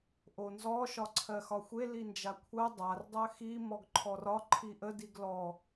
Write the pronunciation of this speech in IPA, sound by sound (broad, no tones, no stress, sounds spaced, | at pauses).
ʔ o n z ɔ ʃ ɒ ǀʰ ɜ x ɒ xʷ e l i n d͡ʒ a kʷʰ ɜ dˤ a r dˤ ɜ x i m ɔ ɡ ǃʰ ɔ r ɒ ǃʰ i ʔ ə d i ɡ l ɔ